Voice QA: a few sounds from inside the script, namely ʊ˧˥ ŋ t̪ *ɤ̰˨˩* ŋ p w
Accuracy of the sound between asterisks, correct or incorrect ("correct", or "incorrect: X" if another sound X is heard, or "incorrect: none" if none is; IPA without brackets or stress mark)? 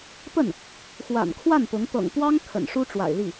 correct